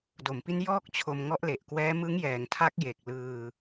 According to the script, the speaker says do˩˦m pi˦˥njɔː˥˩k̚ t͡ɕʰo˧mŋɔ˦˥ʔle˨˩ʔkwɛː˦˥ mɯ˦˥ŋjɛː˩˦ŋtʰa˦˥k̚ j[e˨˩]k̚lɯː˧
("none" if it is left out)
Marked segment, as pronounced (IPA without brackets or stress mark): e˨˩